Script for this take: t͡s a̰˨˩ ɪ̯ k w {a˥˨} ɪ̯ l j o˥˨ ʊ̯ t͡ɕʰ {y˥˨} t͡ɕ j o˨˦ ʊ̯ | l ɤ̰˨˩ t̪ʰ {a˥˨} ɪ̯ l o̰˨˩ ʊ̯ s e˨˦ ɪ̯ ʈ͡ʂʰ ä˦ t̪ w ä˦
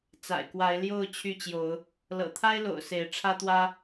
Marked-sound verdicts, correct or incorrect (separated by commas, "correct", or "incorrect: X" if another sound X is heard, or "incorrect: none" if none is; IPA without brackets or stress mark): incorrect: a˨˦, correct, incorrect: a˦